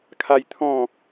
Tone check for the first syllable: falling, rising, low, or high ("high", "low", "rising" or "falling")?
high